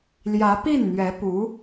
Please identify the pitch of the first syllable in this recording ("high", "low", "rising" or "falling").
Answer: rising